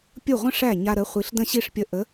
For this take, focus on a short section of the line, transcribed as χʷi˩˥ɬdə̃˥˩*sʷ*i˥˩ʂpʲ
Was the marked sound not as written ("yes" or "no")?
yes